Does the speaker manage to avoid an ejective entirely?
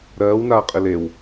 no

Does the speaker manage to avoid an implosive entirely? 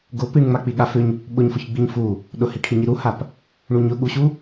no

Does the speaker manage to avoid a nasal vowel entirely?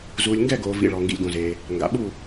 no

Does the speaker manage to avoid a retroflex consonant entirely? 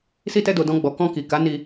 yes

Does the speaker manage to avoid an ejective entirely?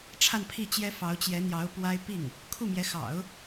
yes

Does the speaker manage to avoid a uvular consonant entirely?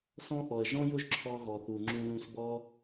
yes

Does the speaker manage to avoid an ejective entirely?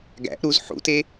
yes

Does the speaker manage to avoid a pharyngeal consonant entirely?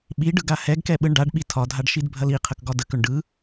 yes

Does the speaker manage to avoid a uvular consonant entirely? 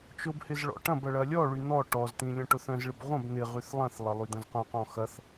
no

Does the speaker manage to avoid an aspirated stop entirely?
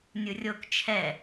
no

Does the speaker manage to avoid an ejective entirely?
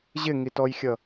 yes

